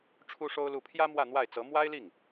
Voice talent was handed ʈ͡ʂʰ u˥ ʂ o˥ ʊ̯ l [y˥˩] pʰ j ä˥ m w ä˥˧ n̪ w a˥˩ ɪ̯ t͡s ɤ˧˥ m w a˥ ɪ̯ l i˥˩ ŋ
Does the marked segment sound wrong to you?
yes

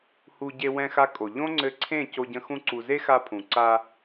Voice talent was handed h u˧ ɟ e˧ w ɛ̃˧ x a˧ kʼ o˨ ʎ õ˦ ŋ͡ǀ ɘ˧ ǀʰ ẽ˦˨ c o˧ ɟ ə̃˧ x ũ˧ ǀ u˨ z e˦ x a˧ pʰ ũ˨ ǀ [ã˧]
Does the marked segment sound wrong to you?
yes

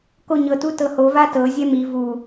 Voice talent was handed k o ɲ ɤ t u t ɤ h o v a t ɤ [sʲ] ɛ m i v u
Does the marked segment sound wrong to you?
yes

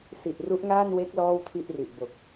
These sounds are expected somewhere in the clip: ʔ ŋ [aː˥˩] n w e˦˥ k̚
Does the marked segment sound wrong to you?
no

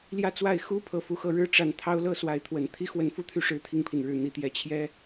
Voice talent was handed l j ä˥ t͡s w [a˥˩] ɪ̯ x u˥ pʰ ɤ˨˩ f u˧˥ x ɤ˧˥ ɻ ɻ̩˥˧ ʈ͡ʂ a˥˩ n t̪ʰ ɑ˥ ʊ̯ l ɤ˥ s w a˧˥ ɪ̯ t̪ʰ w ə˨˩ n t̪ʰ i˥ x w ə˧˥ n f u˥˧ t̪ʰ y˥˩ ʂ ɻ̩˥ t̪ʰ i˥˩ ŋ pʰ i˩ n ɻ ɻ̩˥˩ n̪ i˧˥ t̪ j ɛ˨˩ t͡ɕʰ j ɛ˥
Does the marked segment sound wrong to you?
no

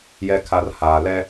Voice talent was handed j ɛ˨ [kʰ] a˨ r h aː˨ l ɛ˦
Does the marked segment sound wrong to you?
no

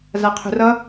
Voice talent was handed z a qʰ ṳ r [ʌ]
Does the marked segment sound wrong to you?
no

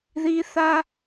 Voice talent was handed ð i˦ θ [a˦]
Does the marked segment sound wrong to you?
no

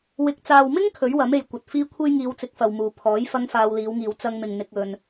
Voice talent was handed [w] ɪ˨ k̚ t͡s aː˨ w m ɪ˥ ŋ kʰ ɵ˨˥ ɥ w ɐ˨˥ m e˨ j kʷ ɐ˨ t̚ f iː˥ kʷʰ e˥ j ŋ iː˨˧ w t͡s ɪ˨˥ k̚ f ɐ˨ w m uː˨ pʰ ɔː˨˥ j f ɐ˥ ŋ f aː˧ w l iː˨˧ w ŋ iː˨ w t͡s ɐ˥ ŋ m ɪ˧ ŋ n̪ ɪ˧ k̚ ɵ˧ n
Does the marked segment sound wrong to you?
no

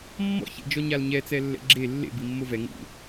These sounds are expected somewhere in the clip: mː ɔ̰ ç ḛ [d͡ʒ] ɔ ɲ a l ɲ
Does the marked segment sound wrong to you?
no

